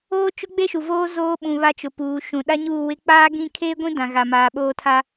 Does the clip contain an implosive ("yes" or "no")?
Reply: yes